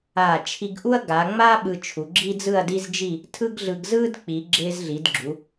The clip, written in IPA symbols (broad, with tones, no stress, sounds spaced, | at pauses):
aː˧˩ t͡ʃʰ i˧ ɡ ʔ u˥ ɐ̯ ɡ a˩˧ ŋ͡m a˥ ɓ ɯ˧ t͡ʃʰ u˩˧ ɡ͡ǁ i˥ d͡z ɯ˥˧ ɐ̯ d i˥ z d͡ʒ i˥˧ | tʰ ɯ˥ ɡ ɮ ɯ˧ ɡ z ɯː˥ d k͡p i˩˧ ɡ͡ǁ ɪː˧ z ɮ i˩˧ d ɡ͡ǁ u˩˧